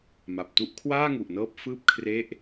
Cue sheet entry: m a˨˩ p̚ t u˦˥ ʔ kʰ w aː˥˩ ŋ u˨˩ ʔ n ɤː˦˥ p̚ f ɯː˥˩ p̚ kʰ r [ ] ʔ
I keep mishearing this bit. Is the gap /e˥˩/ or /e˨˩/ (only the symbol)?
e˥˩